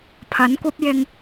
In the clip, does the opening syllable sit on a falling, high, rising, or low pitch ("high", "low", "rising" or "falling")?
rising